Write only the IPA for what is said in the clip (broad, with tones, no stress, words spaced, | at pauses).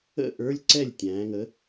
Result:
ə̰˥˩ ʔə˞˧˥˧lʲǀɛ˥˩lʲ tʲæ̃ː˩˧ŋə˨˥